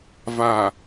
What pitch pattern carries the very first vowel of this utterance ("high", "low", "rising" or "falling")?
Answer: low